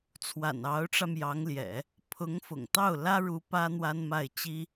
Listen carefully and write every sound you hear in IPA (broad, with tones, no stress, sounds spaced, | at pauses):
t͡sʰ w a̰˨˩ n ɑ˧˥ ʊ̯ ʈ͡ʂ ä˧ m j ɑ˧˥ ŋ l j ɛ̰˨˩˦ | pʰ ʊ˧˥ ŋ f ʊ̰˨˩ ŋ t̪ ɑ˥˩ ʊ̯ l ä˥ ɻ u˧˥ p ä˥ n̪ w a˥ n m a˥˩ ɪ̯ t͡ɕ i˥